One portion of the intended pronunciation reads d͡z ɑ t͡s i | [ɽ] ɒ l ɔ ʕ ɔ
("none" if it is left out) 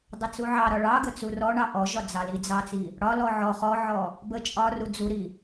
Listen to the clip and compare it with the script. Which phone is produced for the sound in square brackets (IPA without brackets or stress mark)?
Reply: ɽ